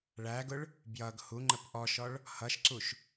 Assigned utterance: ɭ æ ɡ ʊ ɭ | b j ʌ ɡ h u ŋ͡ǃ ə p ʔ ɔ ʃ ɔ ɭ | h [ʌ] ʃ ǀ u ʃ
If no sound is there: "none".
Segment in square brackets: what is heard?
ʌ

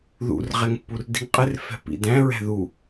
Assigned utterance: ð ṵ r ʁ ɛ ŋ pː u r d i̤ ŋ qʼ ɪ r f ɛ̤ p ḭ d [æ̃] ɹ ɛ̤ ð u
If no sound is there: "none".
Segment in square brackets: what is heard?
æ̃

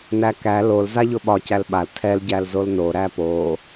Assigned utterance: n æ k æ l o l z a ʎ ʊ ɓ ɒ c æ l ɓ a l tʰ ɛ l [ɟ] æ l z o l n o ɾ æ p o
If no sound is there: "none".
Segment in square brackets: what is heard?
ɟ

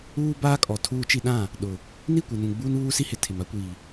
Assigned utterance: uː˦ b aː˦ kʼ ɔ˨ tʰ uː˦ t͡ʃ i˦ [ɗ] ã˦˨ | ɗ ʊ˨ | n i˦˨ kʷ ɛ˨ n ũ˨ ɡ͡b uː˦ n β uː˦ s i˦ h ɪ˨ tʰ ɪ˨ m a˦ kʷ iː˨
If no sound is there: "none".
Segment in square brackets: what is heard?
ɗ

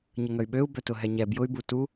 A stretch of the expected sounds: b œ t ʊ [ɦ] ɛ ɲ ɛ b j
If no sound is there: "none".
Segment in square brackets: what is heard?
ɦ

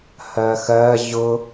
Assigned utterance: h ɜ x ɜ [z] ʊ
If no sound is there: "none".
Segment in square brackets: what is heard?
ʑ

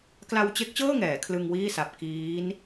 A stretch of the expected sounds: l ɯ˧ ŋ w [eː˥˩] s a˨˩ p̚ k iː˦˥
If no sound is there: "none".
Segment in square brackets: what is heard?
iː˥˩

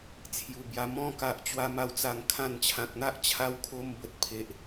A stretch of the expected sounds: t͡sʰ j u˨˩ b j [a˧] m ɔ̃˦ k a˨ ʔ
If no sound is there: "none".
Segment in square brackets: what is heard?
a˧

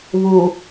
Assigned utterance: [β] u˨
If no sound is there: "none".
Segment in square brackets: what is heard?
β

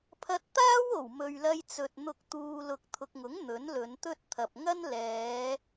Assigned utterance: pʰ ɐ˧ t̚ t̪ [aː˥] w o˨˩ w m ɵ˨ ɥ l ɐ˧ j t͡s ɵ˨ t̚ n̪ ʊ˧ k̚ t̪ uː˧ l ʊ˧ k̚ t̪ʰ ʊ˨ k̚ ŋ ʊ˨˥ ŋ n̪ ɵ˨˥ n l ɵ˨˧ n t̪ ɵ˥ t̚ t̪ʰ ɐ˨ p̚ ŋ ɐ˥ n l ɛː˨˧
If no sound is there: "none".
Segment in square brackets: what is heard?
aː˥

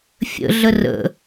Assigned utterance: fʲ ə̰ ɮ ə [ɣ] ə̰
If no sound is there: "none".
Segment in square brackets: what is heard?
r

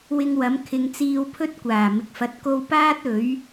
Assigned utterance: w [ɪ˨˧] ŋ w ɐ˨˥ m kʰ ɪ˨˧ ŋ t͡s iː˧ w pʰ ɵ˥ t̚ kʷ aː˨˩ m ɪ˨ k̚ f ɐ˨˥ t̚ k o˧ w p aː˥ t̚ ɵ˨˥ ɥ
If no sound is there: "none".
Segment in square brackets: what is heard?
ɪ˧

